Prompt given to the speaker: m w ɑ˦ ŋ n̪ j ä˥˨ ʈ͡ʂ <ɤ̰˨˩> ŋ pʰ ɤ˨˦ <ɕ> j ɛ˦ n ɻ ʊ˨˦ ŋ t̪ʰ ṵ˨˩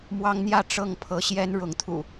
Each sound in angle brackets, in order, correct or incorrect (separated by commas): incorrect, correct